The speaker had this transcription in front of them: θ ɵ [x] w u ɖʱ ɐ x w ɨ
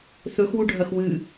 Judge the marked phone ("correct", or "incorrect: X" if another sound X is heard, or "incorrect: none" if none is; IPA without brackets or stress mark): correct